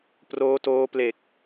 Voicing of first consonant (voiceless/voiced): voiceless